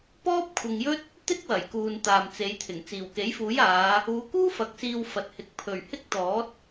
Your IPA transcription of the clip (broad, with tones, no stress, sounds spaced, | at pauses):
p ɔː˥ p̚ kʷʰ ɪ˨ ŋ j ɵ˥ t̚ | t̪ ɪ˥ k̚ w ɐ˨˩ j k uː˨ n t̪ aː˨ m t͡s e˨˧ j t̪ʰ ɪ˨˩ ŋ t͡s iː˨˩ w k e˨˥ j f uː˨˥ j aː˨˧ | uː˨˧ k uː˥ f ɐ˨ k̚ s iː˧ w f ɐ˨ t̚ h ɪ˨˥ k̚ pʰ ɵ˨˩ ɥ h ɪ˥ k̚ t̪ ɔː˨˥ t̚